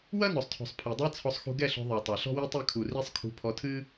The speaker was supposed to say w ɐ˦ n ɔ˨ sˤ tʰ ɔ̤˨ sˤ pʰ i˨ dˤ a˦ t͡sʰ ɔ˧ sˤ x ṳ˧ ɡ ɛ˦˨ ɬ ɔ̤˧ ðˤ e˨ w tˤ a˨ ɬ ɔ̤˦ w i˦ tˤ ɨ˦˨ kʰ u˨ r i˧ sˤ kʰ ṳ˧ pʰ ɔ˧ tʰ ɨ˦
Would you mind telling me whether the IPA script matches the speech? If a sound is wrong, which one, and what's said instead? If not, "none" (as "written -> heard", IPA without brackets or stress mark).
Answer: none